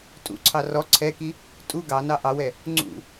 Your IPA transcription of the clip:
tʼṵǀʰɑ rɔ ǀʰɛki | tʼu ɡɑnɑ ʔɑwɛ | ŋ͡ǀṵ

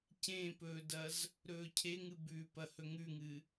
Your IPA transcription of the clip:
cẽpɵːdɐz | ɾɵːcʰeŋɨ bʉpɐ hɵŋʉŋɨ

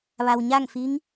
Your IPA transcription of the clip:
ʋa˩wɲa˥˨ŋ fi˧˥ŋ

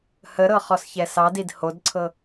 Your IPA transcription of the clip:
həɾɤχɔsçɛ sɑdid hodǀʰɤ

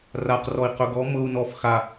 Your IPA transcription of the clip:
raqrɔi̯ qɵɡɔ mɤu̯ nɔf xa

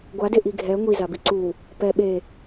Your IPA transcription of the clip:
ɡʷade ʔiɡʱɛ ŋʷizabi ǀu | pɛ ɓe

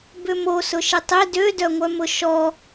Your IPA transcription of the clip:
bʏmo sʊʃɪtˤɪ dødœŋʷœmʊ ʃɔ

